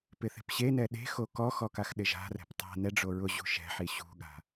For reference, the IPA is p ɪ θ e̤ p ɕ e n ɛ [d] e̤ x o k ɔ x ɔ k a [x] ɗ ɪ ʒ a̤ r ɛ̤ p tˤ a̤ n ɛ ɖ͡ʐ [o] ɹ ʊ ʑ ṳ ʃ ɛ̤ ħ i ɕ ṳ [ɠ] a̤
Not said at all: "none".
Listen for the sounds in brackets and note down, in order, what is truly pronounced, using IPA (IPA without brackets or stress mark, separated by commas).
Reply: ɗ, x, o, ɠ